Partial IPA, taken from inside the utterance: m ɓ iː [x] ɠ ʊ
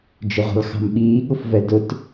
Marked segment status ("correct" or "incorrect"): incorrect